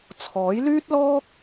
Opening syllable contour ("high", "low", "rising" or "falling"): rising